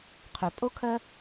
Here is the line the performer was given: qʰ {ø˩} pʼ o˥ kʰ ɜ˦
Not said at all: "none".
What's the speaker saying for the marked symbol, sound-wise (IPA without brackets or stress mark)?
ø˩